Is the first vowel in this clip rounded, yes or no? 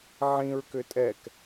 no